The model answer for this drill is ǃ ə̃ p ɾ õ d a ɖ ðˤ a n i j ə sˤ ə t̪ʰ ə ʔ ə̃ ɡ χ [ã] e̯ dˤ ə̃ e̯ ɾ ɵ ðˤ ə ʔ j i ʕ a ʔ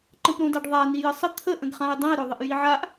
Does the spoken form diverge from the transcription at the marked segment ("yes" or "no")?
no